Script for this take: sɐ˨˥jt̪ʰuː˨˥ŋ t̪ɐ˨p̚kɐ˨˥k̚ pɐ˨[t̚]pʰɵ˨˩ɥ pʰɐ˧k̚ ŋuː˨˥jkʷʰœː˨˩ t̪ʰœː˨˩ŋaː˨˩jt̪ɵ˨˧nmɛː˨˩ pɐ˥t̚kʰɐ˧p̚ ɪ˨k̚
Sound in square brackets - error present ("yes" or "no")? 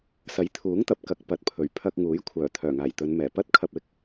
no